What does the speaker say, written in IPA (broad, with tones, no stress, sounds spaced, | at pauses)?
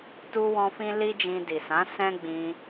t u˦ w ɔ̃˦ f ĩ˦ l i˦ d͡ʒ ĩ˧ d i˨ s ã˨˦ s ɛ̃˦ ɡ͡b ĩ˧